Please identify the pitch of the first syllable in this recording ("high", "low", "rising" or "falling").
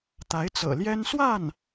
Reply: rising